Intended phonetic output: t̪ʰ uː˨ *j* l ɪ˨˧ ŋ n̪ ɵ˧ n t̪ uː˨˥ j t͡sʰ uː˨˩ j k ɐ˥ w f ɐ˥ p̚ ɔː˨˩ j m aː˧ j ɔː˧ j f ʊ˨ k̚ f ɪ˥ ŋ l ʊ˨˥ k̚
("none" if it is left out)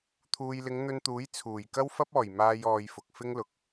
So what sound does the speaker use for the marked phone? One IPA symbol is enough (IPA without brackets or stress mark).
j